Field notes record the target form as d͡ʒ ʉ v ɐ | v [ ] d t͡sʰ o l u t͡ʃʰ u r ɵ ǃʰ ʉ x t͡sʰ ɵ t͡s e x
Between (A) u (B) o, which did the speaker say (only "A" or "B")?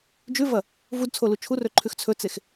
A